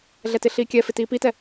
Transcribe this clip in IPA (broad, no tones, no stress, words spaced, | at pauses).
ɮɛtɪɬiːkʲɛ fɪtiːpitɛ